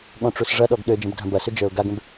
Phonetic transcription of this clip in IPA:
ɠ ɔ̃ ʈ͡ʂ u s ʐ ɐ ɗ ɔ ɡ ɗ ø d͡ʒ ə̃ b dʱ ɐ̃ b ɐ s ʏ d͡ʒ ə˞ ʊ̯ ɡ a ɡ ə̃ b

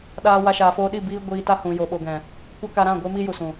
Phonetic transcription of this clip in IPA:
ɗ aː˧ w a˧ ʃ aː˨ f oː˧ ɗ i˦˨ b iː˦ ɡʷ iː˧ t a˦ h ũ˨ j o˨ ɓ o˨ ɡ ɛ̃˨ | kʷ a˦ k a˧ ɾ ã˦˨ ɡʷ e˦ m i˦ j u˨ s ũ˨

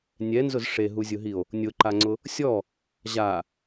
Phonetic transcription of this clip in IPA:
nʲ ɛ n z ʊ z ʂ e ɦ u zʲ ʊ ɦ i o̯ | nʲ ʊ ǃ a ŋ͡ǀ ʊ | sʲ ɔ | ʑ a

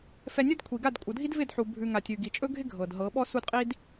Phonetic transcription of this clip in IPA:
f ɛ˧ nʲ ɵ˦ d kʷʰ i˨ ɡ a˦˨ d kʷʼ ɤ˨ dʱ i˦ d v ɪ˦˨ d ħ u˨ bʱ ʉ˧ ŋ a˨ tʲ ʉ˨ ɡ i˨ t͡ʃʼ ɵ˦ ɡʱ ɪ˦ ɡʱ ɤ˨ d ɦ ɤ˨˦ ɓ ɔ˦ s u˦ d qʼ i˦ d

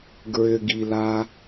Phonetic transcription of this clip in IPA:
ɡ ɹ ʏ ɡ i l a

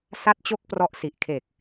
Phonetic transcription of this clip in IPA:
s a˦˥ t̚ t͡ɕ o˦˥ k̚ p r ɔ˦˥ ʔ s i˨˩ ʔ kʰ e˨˩ k̚

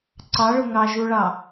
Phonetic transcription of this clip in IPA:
ǀ ɑ ɭ ʊ ŋ ɑ ʒ u ɭ ɑ

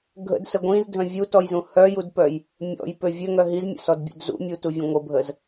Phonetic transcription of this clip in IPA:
ɡʱ ə̰ d s ə ɡʷ ĩ z dʱ œ̃ vʲ u t ɔ j z ũ h œ j u d p œ j | mʲ ɔ̰ j p ø vʲ ø ŋ œ ɦ i z mʲ ə̰ s ɔ d bʲ ṵ d z ṵ mʲ u t u vʲ ə̃ ŋʷ ə bʱ ə z

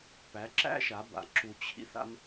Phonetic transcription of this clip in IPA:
p æ˩˥ ǁ æ̰˥ ʃ a˩˥ b a̰˩˥ ǁ u˧ t͡ɕʰ ḭ˥ θ a̰˥ m

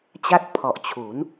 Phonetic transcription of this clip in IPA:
t͡ɕ a˦˥ t̚ pʰ ɔ˨˩ ʔ t͡ɕʰ u˩˦ n

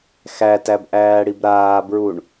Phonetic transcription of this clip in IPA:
x æ t æ b ʔ æː ɽ i b ɾ aː b ɹ u ɳ

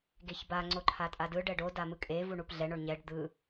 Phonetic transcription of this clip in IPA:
ɡ e ç b a ŋ͡ǀ o ǃʰ a tʼ a d ɯ ɖ ɛ ɖ o d a m ɯ kʼ e v u ɳ u p ɮ ɛ ɳ o ɳ ɲ ɛ ɖ d̪ ɯ

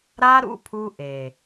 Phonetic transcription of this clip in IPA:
ɾ a˦ ɾ ṵ˦ pʰ u˦ ʔ e˨

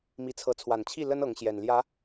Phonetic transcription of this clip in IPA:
m i˨˦ t͡sʰ ɤ˨˦ t͡sʰ w a˨˩ n t͡ɕʰ i˥˨ l ə˦ n ɤ˨˦ ŋ ɕ j ɛ˨˩ n l j ä˨˦

